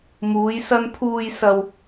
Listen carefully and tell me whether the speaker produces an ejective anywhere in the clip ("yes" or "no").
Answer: no